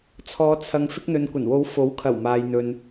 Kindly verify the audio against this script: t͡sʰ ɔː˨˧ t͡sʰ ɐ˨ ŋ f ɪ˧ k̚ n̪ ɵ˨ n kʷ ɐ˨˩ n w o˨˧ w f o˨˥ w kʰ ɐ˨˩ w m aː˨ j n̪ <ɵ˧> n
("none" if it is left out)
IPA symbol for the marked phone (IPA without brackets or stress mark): ɵ˨